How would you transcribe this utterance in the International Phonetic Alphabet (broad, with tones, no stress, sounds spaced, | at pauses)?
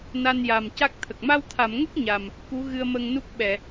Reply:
n a˧ n j a˨˩ m c a˦˥ k̚ t̪ʰ ə˨˩ k̚ m a˧ w t̪ʰ a˨˩˨ m ŋ ə˦˥ k̚ ɲ a˨˩ m | k u˧˥ ɣ ɨ˧ ə̯ m ə˧ ŋ n u˦˥ k̚ ɓ ɛ˨˩˨